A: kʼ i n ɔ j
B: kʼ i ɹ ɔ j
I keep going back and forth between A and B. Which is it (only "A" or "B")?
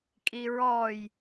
B